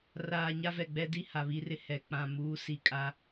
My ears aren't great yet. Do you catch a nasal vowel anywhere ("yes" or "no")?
yes